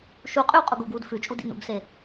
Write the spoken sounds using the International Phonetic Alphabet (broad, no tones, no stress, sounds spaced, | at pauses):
ʃ u qʼ y w qʼ u ɡ u ɡ w u d f ʉ t͡ʃʼ u d ḭ n ṵ ɡ s e